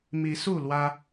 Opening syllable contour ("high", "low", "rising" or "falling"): rising